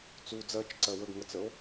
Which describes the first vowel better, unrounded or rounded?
rounded